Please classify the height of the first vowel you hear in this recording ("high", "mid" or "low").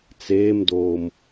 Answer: mid